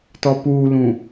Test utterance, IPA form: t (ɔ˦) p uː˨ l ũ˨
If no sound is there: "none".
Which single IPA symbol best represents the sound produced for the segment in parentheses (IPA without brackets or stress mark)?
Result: ɔ˨